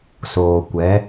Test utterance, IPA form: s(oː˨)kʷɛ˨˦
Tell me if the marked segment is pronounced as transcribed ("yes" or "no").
yes